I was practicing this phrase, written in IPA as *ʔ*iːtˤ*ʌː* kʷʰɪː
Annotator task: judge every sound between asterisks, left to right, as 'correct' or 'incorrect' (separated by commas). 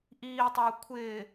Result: correct, correct